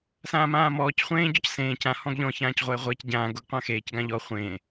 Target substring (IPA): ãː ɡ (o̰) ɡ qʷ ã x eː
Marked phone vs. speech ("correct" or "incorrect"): incorrect